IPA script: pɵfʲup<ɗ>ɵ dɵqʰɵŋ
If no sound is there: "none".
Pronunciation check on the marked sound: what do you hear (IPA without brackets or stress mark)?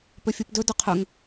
d